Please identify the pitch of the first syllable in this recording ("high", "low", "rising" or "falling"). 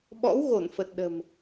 rising